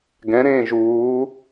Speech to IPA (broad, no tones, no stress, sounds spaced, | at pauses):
ɡ ɛ̃ ɾ ẽː ʒ uː